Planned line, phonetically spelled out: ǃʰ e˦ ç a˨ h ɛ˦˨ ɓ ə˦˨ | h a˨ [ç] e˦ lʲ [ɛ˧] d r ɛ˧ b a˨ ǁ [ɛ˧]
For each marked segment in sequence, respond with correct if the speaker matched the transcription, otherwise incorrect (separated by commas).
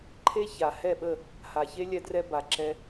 correct, correct, correct